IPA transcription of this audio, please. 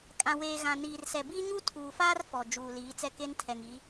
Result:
kʼ ã˨ w eː˨ ɣ ã˨ n iː˨ r s ɛ˨ b iː˦ ɲ u˦ tʰ uː˨ f aː˦ r f ɔ˨ d͡ʒ uː˨ l iː˨˦ t͡s ɛ˦ k e˦ n tʰ ɛ˨ ŋ i˨˦

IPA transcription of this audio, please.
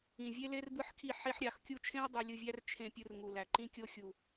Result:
ĩ˨ vʲ e˦ l e˦ r b ɯ˦ ħ kʰ i˦˨ ħ e˧ ħ ɾʲ ɑ˨ x kʲ u˧ t͡ʃʰ ẽ˦ w dˤ ø˧ lʲ ɯ˧ vʲ æ˦ r t͡ʃʰ ẽ˧ pʲ ɯ˧ r ŋ u˨ l æ˨ ǃ ĩ˦ kʲ o˧ xʲ u˨

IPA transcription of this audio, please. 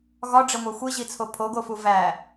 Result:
ɣ ɒ ɖ͡ʐ e ŋʷ æ xʷ i ʑ i t͡sʰ o pʰ o ɡ o f u v æ

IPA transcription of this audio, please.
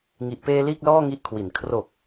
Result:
ŋ i˨˩ ʔ p eː˧ l iː˥˩ k̚ l ɔː˥˩ ŋ i˦˥ ʔ kʰ w i˨˩ n kʰ r o˨˩ k̚

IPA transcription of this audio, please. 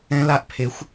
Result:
ɛ̃˦˥ l a˦˥ ʔ pʰ e˨˦ xʷ

